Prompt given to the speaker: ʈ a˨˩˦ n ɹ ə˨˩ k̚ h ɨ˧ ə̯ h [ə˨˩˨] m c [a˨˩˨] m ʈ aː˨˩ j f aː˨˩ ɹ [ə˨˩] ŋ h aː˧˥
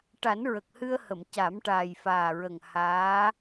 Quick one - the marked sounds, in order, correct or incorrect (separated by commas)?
correct, incorrect, correct